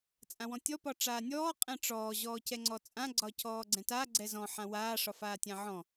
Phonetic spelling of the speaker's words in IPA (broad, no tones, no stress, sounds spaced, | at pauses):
t͡sʼ ã w ɔ̃ tʲ ɔ p ɒ ʈ͡ʂ aː nʲ ɔː qʼ ɛ̃ ʈ͡ʂ ɔː ʑ ɔː c ɛ ŋ͡ǀ ɔ t͡sʼ ã ɡ͡ǀ ɒ c ɔː ɡ͡ǀ ɛ̃ t a ɡ͡ǀ ɛ z ɔ̃ ħ ã w aː ʂ ɒ f aː tʲ ã ʕ ɔ̃